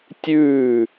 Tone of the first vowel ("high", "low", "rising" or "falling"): falling